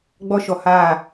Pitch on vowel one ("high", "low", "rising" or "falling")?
high